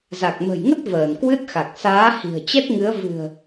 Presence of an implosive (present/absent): absent